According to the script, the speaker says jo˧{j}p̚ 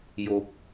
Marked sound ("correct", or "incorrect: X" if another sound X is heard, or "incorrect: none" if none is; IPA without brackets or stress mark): incorrect: none